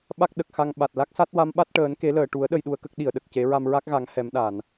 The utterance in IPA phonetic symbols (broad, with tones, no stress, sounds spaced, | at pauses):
ɓ a˦˥ k̚ ɗ ə˨˩ k̚ x a˧ ŋ ɓ a˨˩ t̚ l a˦˥ k̚ s a˦˥ t̚ w a˧˥ m ɓ a˦˥ t̚ ʈ əː˨˩˦ n k e˨˩˦ l əː˨˩˨ ʈ u˨˩˦ ə̯ ɗ ə˧ j ɗ u˧ ə̯ k ə˦˥ k̚ ɗ i˨˩˨ ə̯ ɗ ə˨˩ k̚ c e˨˩˦ ɹ a˧ m ɹ a˦˥ k̚ ɣ a˨˩˦ ŋ h ɛ˨˩˦ m ɗ a˨˩˨ n